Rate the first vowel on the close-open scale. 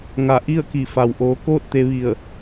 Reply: open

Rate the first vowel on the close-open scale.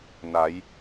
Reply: open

